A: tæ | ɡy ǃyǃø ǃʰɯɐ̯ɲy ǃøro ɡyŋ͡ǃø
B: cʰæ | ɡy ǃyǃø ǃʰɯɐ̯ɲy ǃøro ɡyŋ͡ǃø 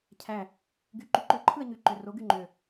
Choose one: B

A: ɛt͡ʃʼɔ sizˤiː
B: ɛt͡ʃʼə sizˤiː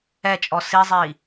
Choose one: A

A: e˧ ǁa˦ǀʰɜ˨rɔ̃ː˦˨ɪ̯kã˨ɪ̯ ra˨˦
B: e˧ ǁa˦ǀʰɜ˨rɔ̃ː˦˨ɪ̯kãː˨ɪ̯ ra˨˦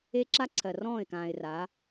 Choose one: B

